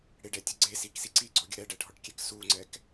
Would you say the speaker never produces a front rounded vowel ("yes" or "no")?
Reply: yes